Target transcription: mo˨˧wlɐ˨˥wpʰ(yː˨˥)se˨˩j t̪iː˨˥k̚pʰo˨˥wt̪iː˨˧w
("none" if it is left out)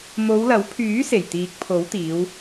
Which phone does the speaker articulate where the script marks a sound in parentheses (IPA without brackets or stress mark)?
yː˨˥